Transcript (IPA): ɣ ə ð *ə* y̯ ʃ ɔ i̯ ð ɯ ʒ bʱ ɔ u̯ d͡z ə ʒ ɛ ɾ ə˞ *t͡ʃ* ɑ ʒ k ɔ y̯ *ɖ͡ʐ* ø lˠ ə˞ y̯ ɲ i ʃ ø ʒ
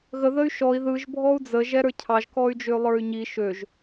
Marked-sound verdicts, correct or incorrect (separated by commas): correct, incorrect, incorrect